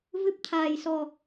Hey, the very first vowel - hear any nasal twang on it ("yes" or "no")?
no